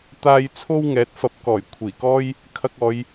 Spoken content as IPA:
t̪ aː˧ j t͡sʰ o˥ w ŋ ɛː˨˥ t̚ f ɐ˨ p̚ k ɔː˨˩ j kʷʰ iː˨˩ k ɔː˥ j | kʰ ɐ˧ k̚ ɔː˨˧ j

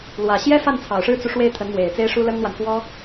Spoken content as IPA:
l w ä˨˩ ɕ j ɛ˥ f a˥˩ n t͡sʰ ɑ˨˩ ʊ̯ ʂ ɻ̩˥ t͡s u˨ ʂ w e˥˩ ɪ̯ t̪ʰ ə˧˥ n m w e˨˩ ɪ̯ t͡s e˥ ɪ̯ ʂ u˥ l ə˥ n n̪ w a˨ n f w ɔ˥

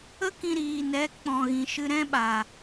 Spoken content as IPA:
ə˦ k ĩ˧ ɾ iː˨ n ɛ˨˦ k͡p ɔ̃˨ ɣ ĩ˨ ʃ ɨ˧ ɾ ɛ̃˦ ɓ a˨

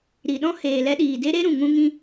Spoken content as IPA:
ɾ i˨ ɗ ɔ̃˦ h eː˨ l ɛ˧ ɗ iː˨ d e˦ ɾ e˦ ɾ ũ˨ ŋ ũ˧ ŋ ĩ˧

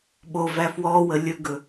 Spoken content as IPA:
ɓ o v æ f w ɔ w ə lʲ ɵ ɡ ɵ

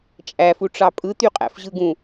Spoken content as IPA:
t͡ʃʼ æ f u ʈ͡ʂ ɑ pʼ ɯ t̪ y qʼ æ̰ f ʑ ɯ ɡ ũ

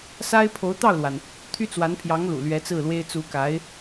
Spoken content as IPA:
s a˥ ɪ̯ pʰ o˧˥ ʊ̯ t̪ ɑ˥˩ ʊ̯ l w a˩ n | t̪ʰ y˥ t͡s w a˧˥ n pʰ j ɑ˧˥ ŋ l ṵ˨˩ l ɥ ɛ˧˥ t͡s ɹ̩˥˩ l w e˥ ɪ̯ t͡s u˧˥ k a˧˥ ɪ̯

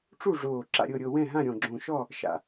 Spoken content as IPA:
ʈ͡ʂ u˦˨ ʐ oː˨˩ ǁ a̰˦˨ ɾʲ ɤ˦˨ ɾʲ ɤ˦˨ w ɛ̃˦˨ ɦ ã˦˨ ɾʲ ɔ̃˨˩ ɡ͡ǁ õ˨˩ ʃ ɔ˦˨ | ʃ a̰˨˩

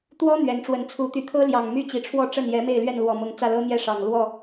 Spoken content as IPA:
t̪ w ɔ˦ n̪ ɥ ɛ˨˦ n ʈ͡ʂ w ə˨˦ n t͡sʰ u˨˦ t̪ y˨˩ t̪ʰ ɤ˦ l j ɑ˨˩ ŋ m y˥˨ t͡ɕ i˨˩ ʈ͡ʂʰ w ɔ˥˨ ʈ͡ʂ ə˥˨ n j ɛ˨˦ m e˥˨ ɪ̯ l ɥ ɛ˥˨ n l w ɔ˨˩ m ʊ˨˦ ŋ t͡s ä˥˨ l ɤ˦ n̪ j ɛ˦ ʂ ɑ˨˩ ŋ l w ɔ˥˨

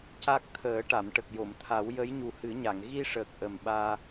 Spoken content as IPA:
c a˦˥ k̚ t̪ʰ əː˨˩˦ ʈ a˨˩˨ m ʈ ə˨˩ k̚ j o˨˩˨ m t̪ʰ a˨˩˦ w j ə˧˥ j ɲ u˨˩ h ɨ˨˩˦ ɲ a˨˩˨ ŋ ɣ i˧ ʂ əː˨˩ k̚ ʔ ə˨˩ m ɓ aː˧

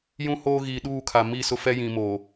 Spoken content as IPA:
j ũ˦ h oː˦ ɣ iː˨ ɗ uː˦˨ kʰ a˨ m i˦˨ s ʊ˦ f ɛ˦ j ĩ˨ m oː˨

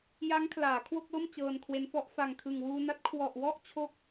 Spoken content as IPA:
j a˦˥ ŋ kʰ l aː˩˦ kʰ w o˥˩ k̚ l o˥˩ m t͡ɕ ɤː˧ n kʰ w e˦˥ n f ɔ˦˥ ʔ f a˨˩ ŋ kʰ ɯ˨˩ ŋ w uː˧ n a˦˥ t̚ kʰ w ɔ˨˩ ʔ w ɔ˥˩ ʔ t͡ɕʰ o˦˥ k̚

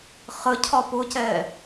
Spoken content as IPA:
χ ə cʰ ɒ p ʊ c ɛː

